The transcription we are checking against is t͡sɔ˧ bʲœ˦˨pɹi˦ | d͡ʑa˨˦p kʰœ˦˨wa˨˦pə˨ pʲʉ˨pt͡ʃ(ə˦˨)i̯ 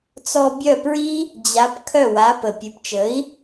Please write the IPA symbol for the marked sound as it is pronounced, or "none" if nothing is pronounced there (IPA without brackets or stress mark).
ə˨˦